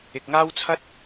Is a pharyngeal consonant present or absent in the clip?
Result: absent